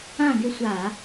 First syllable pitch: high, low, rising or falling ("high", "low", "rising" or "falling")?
falling